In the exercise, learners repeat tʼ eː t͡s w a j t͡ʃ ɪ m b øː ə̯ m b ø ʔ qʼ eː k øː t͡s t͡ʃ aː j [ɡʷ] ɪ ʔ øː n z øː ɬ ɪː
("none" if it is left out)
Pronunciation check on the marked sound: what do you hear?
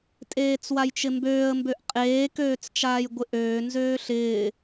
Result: ɡʷ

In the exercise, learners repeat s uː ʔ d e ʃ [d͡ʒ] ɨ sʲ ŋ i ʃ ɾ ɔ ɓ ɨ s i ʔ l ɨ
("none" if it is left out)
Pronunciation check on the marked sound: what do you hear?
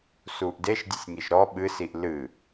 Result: dʲ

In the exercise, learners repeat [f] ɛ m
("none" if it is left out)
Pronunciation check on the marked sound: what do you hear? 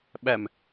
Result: ɓ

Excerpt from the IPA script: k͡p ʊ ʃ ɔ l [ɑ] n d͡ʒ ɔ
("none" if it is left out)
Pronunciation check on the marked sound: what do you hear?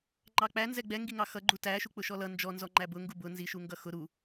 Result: ʌ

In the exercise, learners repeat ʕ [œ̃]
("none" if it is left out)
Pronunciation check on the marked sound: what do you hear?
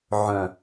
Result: œ̃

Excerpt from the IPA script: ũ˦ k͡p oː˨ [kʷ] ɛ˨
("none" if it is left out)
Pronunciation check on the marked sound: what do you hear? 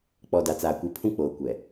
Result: kʷ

